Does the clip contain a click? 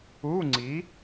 yes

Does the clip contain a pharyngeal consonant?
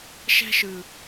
no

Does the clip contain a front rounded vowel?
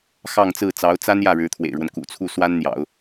no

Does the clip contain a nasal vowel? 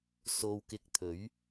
no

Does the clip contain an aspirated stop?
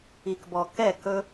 no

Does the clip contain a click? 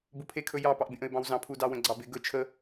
yes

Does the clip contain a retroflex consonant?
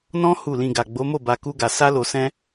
no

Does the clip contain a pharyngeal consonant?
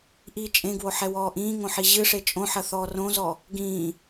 yes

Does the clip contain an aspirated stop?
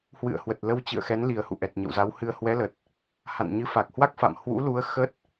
no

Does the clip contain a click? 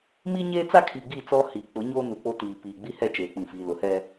no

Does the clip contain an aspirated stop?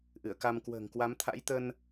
yes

